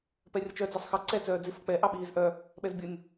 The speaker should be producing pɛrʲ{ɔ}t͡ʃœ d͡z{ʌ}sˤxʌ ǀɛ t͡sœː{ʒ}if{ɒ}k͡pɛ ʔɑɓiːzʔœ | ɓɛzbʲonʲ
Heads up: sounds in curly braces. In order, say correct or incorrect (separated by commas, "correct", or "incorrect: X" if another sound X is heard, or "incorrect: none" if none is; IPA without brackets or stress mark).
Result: incorrect: ʌ, incorrect: ɑ, incorrect: d͡z, incorrect: ʌ